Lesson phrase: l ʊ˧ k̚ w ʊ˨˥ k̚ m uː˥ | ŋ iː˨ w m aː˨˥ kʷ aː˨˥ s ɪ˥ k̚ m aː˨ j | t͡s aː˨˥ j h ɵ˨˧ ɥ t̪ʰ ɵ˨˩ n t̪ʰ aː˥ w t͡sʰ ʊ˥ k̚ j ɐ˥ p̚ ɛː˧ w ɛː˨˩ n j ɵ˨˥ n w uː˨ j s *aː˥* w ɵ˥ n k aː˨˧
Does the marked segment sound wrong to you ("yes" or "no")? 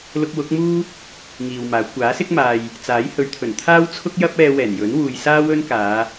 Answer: no